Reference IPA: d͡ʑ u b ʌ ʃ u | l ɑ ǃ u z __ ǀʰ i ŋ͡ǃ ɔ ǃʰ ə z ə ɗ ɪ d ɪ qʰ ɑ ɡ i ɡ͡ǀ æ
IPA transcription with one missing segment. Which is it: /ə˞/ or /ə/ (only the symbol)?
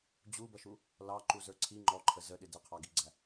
ə˞